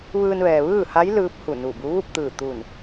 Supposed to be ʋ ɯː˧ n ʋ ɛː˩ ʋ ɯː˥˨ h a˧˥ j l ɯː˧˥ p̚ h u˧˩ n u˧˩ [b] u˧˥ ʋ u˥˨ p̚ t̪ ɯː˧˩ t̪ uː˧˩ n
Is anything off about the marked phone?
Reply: no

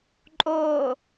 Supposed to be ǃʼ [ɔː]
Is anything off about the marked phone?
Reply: yes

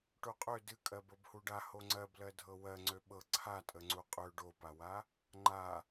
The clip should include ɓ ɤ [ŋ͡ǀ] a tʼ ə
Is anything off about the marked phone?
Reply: yes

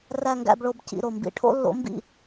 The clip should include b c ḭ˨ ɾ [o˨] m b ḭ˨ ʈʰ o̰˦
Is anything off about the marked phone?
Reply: no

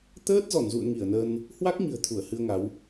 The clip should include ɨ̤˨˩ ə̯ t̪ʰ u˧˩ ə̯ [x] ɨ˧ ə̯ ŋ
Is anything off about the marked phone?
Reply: yes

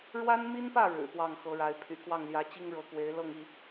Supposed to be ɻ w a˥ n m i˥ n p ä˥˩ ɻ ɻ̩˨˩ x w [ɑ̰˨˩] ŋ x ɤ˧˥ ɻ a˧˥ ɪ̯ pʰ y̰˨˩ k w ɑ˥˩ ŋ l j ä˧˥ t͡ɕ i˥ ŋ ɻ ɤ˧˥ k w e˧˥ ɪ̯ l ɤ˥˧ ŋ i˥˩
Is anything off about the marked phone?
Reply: yes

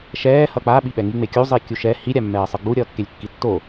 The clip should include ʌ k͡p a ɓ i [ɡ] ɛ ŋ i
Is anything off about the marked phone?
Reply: yes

